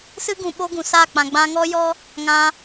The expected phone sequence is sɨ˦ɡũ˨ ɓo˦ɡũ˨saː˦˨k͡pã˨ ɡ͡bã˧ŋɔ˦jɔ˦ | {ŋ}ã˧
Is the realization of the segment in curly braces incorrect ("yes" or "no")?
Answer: no